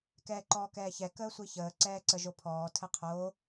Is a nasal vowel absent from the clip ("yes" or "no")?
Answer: yes